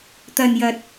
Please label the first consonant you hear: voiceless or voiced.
voiceless